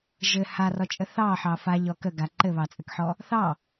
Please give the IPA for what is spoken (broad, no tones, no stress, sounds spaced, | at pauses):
ʒ ɘ h a r ɔ t͡ʃʼ ə θ ɑ ħ ɑ f a ʎ ɔ k ə ɡ a ǃ ɘ β ɑ t͡sʼ ɘ k ħ ɔ | θ ɑ